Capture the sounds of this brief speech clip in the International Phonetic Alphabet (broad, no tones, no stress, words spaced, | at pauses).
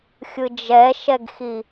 xʲɯd͡ʒɛʃɛɡxi